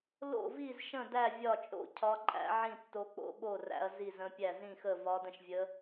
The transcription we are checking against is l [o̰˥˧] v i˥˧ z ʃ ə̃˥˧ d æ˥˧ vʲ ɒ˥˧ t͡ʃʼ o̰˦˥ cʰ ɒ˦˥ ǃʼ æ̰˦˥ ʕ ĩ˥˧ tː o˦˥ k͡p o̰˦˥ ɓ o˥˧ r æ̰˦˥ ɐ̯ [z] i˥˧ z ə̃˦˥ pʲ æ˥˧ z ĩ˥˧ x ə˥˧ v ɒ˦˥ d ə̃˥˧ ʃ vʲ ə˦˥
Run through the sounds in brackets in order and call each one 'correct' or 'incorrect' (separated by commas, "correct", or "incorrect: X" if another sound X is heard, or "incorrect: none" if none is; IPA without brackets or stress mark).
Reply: correct, correct